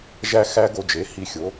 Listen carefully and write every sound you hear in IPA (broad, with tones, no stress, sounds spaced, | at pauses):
ʒ æ˥ x æ˥ ɡ o˧ d͡ʒ e˩˥ h i˧ xʲ o˩˥